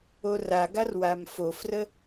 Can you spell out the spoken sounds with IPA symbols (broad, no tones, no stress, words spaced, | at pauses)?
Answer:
oraɡar wamfofrə